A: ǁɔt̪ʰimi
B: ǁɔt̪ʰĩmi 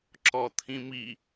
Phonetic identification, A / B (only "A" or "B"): B